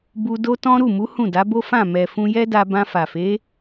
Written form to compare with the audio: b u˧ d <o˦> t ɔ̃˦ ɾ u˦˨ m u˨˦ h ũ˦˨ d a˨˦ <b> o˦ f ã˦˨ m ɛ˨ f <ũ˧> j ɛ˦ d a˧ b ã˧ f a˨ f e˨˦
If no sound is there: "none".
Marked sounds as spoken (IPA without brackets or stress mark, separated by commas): o˦, b, ũ˧